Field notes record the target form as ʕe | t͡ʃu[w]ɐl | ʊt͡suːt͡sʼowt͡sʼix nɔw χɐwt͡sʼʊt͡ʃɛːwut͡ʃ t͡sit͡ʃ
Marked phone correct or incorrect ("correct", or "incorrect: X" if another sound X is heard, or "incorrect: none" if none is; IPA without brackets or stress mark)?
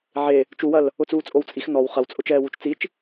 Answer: correct